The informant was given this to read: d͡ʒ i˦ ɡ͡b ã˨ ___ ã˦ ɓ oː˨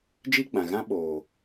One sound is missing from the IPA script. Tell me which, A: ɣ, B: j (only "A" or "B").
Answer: A